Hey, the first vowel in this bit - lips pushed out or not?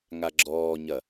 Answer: no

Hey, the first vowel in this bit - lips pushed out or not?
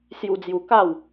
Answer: yes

